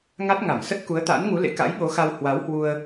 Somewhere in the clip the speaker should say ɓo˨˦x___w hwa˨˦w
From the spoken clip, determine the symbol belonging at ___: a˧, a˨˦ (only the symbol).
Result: a˧